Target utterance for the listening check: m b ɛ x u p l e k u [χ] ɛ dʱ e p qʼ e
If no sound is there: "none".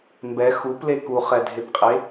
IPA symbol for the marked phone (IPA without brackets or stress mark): χ